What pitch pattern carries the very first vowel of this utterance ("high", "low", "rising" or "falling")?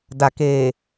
low